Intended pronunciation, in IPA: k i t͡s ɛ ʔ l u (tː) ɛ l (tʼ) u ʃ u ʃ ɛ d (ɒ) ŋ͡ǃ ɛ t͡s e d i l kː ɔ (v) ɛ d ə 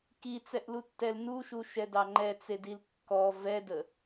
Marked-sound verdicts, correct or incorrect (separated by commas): correct, incorrect, incorrect, correct